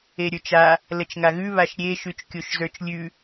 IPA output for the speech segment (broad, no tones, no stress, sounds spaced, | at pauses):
e ɾʲ ə˞ t͡ʃ a | l ə t͡ʃ ŋ a ɣ ʉ β a ʃ ɾʲ e ʃ ʉ t͡ʃ kʲ o ʃ z ə˞ t͡ʃ lʲ ʉ